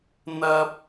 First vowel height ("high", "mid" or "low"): low